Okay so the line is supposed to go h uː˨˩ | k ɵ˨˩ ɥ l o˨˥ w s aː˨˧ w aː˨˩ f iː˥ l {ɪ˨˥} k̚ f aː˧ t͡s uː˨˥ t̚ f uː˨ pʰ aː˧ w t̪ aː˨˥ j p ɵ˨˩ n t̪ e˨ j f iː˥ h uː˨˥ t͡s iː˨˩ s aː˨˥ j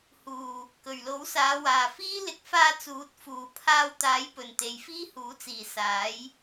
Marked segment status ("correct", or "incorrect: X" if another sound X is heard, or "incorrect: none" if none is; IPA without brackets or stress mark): correct